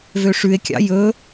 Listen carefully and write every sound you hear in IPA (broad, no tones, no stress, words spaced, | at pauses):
vøʂʉe̯kʲɑ̰ jɵ